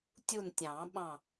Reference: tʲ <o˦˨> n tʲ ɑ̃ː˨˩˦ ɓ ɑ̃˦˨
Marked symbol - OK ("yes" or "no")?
no